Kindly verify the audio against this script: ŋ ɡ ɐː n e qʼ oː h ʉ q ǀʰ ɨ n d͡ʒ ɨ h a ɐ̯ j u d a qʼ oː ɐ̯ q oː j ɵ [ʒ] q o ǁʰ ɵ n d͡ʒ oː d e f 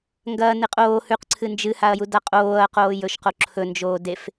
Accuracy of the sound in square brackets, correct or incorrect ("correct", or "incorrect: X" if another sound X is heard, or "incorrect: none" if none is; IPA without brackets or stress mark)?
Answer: incorrect: ʃ